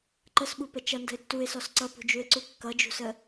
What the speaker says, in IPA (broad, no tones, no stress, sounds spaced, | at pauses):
ǃ ə s ɓ u p ə t͡ʃ ʌ n d ə̤ ɪ̯ tː u ɪ̯ s ɔ s ǀ ʌ p ṳ d͡ʒ u ɪ̯ ǀ u kː ʌ d͡ʒ ṳ s ə